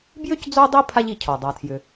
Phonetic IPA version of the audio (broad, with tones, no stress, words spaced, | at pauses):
bjʏ˥cd͡zo˦dˤi˦ pʰa˦ʎi˨cʰɔ˩ dˤa˨tʰjʏ˨